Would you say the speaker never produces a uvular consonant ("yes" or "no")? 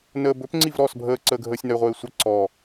no